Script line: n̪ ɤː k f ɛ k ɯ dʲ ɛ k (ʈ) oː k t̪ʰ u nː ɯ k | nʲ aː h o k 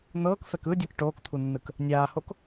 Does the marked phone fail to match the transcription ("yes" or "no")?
no